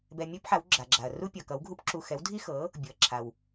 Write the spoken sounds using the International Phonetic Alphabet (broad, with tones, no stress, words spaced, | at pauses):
bɛ˧mʲu˥pħa˩˥w ɡ͡ǁa˩ɡ͡ǁa˩ɐ̯ ru˥pʲʌ˩kʌ˩˥w ɡʱu˥pǁu˧ xɛ˩˥wdʱi˥xɤ˩˥ | bʲʊ˩ɐ̯ǁʰa˩w